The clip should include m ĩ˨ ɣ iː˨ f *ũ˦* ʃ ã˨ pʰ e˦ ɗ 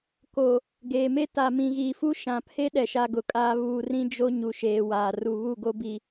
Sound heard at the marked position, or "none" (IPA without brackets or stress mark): u˦